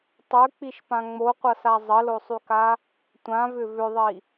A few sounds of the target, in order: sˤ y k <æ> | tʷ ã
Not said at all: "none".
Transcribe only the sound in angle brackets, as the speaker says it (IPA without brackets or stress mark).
a